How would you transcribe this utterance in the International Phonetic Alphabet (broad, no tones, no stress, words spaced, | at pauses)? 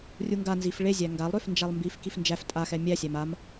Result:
rʲuŋɡa nzifɭezʲæ ŋɡalˠɾøf nd͡ʒalˠmbif kifnd͡ʒæf tʼaxɛ mʲæ sʲæmam